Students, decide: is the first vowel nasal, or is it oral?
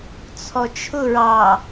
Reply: oral